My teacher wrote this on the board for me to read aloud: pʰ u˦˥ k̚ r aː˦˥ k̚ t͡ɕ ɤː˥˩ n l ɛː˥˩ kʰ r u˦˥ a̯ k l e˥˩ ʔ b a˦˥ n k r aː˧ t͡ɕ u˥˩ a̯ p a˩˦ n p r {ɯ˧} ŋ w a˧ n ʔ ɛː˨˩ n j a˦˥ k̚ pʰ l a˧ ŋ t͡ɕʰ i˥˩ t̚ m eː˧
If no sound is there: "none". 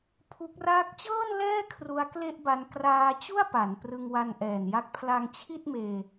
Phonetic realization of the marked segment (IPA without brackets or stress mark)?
ɯ˧